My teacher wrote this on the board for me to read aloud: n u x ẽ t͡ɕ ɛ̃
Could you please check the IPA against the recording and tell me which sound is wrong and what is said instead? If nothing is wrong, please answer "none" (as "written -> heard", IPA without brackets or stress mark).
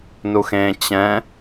none